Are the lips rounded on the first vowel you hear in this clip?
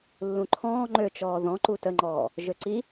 yes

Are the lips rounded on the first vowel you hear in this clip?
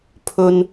yes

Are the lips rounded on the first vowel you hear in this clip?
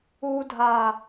yes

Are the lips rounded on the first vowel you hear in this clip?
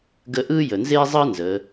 no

